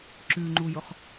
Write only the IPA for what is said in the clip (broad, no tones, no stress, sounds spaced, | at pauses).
ǁ ʉ ŋ͡ǃ u j ʊ χ